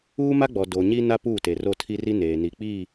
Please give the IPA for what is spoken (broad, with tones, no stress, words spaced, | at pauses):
uː˦ma˦ɡ͡bɔ˨ do˨ɲi˦na˦ puː˦˨te˨ro˦˨ tʰi˦ri˦ neː˨ni˨k͡piː˦˨